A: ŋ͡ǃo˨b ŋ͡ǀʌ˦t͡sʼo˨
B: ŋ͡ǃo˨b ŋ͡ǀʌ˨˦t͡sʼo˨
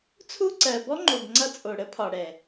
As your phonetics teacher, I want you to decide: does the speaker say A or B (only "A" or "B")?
A